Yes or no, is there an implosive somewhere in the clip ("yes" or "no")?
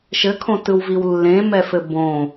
no